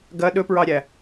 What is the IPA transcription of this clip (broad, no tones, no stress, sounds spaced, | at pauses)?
ɡ ɐ ɗ ɵ p ɹ ɑ ɾʲ æ